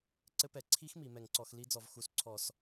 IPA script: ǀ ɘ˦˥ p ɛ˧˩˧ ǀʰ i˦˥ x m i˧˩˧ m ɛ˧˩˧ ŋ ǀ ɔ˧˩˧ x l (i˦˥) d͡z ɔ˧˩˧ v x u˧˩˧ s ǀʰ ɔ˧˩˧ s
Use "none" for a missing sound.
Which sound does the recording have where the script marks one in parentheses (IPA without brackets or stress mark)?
i˦˥